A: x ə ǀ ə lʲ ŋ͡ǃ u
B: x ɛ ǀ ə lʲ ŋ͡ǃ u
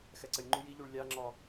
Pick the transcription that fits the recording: B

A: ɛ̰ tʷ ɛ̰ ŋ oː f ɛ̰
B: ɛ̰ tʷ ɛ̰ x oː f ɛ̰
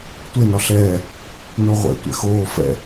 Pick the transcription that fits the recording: B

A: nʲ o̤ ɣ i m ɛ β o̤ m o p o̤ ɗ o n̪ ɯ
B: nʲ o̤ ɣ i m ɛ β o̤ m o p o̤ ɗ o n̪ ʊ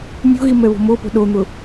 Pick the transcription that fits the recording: B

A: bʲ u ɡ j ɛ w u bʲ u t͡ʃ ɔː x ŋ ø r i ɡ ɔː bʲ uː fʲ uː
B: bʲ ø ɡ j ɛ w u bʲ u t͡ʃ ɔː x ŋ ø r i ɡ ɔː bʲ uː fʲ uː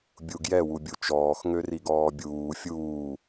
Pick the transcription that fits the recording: A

